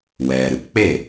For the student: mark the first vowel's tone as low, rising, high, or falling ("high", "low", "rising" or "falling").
low